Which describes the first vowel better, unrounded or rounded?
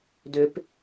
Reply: rounded